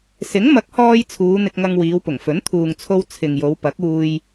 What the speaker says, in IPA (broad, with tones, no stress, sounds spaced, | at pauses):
s ɪ˨˥ ŋ m ɐ˨˥ k̚ h ɔː˧ j t͡sʰ uː˨˧ n̪ ɪ˧ k̚ ŋ ɐ˧ ŋ w iː˨˧ w p ʊ˨˩ ŋ f ɵ˨˥ n t̪ʰ uː˨ ŋ t͡sʰ o˧ w t͡sʰ ɪ˨ ŋ j o˨˧ w p ɐ˨˥ k̚ uː˧ j